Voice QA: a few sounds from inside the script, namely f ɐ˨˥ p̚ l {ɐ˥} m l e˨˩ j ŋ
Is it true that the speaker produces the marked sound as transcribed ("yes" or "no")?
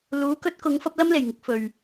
yes